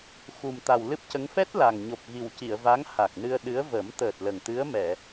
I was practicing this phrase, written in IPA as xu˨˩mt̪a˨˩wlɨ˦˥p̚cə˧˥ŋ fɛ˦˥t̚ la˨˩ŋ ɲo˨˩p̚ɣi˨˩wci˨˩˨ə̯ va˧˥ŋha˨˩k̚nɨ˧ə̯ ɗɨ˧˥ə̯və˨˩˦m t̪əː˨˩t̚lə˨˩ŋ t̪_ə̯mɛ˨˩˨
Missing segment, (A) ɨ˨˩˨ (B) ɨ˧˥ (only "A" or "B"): B